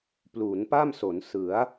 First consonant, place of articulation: labial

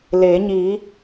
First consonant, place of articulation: alveolar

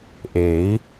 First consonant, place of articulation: glottal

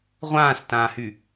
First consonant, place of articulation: uvular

